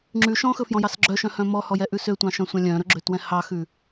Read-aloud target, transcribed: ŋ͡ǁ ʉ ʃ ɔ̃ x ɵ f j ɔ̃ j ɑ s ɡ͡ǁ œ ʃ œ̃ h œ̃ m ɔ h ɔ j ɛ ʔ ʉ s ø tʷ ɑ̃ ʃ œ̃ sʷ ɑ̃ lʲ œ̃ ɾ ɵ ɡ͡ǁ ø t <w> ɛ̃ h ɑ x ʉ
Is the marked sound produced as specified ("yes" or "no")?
yes